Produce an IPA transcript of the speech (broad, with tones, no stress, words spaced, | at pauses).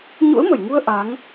ɲṵ˧˥ə̯mə˧˩jŋu˧ə̯ ʔa˨˦ŋ